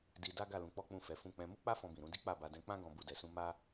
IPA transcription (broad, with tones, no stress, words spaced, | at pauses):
di˧da˦ ɡa˦˨lũ˧k͡pɔ˦k͡pũ˦˨ fɛ˨˦fũ˦˨ k͡pɛ̃˧ mu˦k͡pa˦ fɔ̃˧bĩ˨ ɾũ˧di˦ k͡pa˦˨ba˧dɛ̃˧ k͡pã˦ ɡɔ̃˦ bu˦˨dɛ˧sũ˦ ma˦